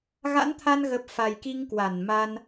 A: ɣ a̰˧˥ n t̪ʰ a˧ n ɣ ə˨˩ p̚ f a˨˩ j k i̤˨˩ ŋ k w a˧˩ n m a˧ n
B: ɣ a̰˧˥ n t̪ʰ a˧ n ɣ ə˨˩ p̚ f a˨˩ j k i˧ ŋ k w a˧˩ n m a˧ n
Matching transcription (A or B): B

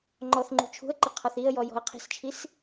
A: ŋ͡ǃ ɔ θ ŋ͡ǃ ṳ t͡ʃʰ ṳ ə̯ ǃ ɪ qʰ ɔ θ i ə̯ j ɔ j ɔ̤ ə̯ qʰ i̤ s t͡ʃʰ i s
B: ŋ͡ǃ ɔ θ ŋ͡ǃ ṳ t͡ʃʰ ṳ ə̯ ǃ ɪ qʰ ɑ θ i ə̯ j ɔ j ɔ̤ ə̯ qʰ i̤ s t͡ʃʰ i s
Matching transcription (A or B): A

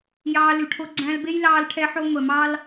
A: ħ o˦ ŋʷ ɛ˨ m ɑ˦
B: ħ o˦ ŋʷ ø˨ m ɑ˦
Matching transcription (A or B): A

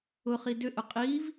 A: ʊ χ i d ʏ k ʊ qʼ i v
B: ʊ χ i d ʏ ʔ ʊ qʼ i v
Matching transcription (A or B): B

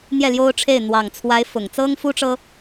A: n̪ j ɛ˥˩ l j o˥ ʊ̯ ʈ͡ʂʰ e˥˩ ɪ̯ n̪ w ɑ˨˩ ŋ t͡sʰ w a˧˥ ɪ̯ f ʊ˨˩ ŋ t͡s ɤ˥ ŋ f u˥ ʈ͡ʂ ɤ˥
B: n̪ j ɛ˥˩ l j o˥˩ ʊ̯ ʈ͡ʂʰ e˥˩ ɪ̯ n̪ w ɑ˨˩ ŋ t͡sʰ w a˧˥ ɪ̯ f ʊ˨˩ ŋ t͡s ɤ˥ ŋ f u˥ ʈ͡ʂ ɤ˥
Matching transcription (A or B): A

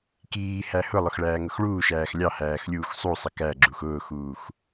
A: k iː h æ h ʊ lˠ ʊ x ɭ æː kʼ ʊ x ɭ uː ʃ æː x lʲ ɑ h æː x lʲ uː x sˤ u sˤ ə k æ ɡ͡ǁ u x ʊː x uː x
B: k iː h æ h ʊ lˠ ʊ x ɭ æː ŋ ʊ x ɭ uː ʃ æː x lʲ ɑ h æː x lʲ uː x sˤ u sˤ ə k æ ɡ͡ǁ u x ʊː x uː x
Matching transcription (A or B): B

